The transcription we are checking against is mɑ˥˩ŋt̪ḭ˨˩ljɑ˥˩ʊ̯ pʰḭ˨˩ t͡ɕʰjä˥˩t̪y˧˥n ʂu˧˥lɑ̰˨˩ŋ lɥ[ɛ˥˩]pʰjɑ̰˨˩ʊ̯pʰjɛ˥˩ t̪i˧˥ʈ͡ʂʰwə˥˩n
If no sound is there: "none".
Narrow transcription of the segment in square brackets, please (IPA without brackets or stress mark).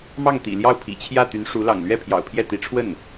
ɛ˥˩